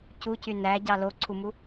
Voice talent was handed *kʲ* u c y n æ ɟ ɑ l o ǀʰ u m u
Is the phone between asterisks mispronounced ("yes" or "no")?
yes